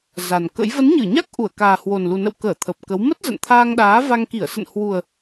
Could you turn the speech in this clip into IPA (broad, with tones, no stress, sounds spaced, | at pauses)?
z a˨˩ n k ə̰˧˥ j v ə˨˦ n ɲ ɨ˧˩ ɲ a˦˥ k̚ ʔ u˧˩ ə̯ k aː˨˩ h w o˨˩ n l u˨˩ n ə̰˧˨ w k əː˧˩ t̪ʰ ə˨˩ p̚ k ə˨˦ w m ə˦˥ t̚ z ə̰˧˨ n t̪ʰ aː˧ ŋ ɗ aː˨˦ v a˧ ŋ k i˧˩ ə̯ s ə̰˧˨ n h w u˨˩ ə̯